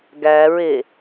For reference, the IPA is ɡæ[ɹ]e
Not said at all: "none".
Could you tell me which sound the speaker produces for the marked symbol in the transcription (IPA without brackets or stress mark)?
ɹ